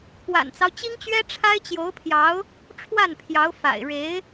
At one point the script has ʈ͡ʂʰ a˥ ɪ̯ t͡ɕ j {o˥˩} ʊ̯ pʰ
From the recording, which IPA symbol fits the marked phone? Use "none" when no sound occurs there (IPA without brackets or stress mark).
o˧˥